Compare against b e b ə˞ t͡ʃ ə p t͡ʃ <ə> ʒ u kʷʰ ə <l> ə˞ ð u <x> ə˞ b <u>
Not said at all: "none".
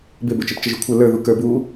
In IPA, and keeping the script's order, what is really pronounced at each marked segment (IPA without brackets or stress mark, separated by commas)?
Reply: ə, l, k, u